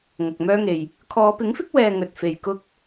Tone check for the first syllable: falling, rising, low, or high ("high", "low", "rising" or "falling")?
low